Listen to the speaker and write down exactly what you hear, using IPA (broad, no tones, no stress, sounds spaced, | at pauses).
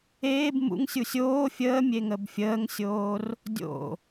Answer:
eː b m ṵ ŋ sʲ u sʲ oː fʲ əː mʲ e ŋ ə b fʲ əː ŋ sʲ oː r | dʲ o̰